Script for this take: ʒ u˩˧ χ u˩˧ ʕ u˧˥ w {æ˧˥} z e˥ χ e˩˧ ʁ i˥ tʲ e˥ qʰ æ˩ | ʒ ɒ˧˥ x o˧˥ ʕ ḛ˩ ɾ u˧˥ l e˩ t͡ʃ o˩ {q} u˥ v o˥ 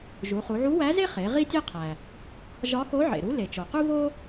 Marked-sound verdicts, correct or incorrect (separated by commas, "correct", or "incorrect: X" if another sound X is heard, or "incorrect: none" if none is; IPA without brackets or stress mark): correct, correct